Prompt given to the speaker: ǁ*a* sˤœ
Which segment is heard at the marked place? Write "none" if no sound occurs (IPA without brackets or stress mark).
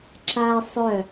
a